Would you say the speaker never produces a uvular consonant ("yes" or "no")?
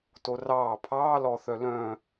yes